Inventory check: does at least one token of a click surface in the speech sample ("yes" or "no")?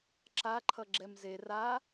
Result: yes